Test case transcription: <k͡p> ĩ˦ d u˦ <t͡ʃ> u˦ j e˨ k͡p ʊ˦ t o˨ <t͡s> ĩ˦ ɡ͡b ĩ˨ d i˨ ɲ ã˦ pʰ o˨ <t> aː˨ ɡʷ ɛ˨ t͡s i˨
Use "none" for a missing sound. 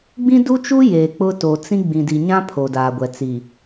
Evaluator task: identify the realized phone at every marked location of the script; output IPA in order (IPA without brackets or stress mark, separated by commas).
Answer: ɡ͡b, t͡ʃ, t͡s, d